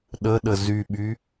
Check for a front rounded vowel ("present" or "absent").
present